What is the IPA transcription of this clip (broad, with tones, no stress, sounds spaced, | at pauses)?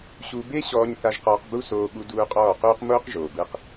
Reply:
ɕ u˧ b e˦ ɕ ɔː˧ ɲ θ a˧ ʒ q ɔː˧ q b u˦ s oː˧ ɠ u˧ d uː˧ qʼ ɔː˦˨ q uː˦ q m oː˦ q ʒ oː˨ b ɯ˧ q